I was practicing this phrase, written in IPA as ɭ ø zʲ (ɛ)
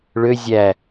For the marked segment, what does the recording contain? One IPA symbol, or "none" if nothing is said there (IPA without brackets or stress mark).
æ